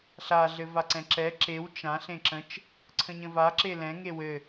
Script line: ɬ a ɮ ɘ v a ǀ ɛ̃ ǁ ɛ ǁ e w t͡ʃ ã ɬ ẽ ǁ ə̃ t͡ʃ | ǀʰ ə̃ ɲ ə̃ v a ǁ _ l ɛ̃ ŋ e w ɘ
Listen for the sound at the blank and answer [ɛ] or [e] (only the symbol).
e